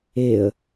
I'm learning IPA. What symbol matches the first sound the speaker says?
e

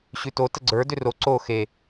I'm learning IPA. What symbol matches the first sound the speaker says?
ɕ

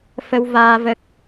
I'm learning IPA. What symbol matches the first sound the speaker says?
f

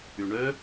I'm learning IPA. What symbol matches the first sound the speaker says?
y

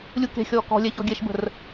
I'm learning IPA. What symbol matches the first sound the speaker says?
lʲ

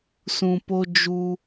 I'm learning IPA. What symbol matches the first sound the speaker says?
s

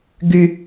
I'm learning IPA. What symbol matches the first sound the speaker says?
ɡ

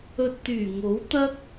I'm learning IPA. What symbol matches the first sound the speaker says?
ɵ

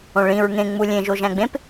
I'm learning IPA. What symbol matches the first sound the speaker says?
õ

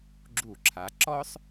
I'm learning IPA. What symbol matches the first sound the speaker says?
ɡ͡ǁ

